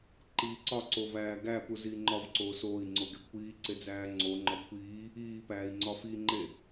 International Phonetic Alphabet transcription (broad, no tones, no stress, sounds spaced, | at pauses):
ǃ iː ǀ ɒ ǀ o v æː ɡ æ p u z iː ŋ͡ǃ ɒ v ǀ oː s oː i̯ ŋ͡ǀ o ɡ e kʷʰ iː ǀ e d͡z æː ŋ͡ǀ o ŋ͡ǃ ɒ kʷʰ iː | iː p æː i̯ ŋ͡ǀ ɒ f i ŋ͡ǃ e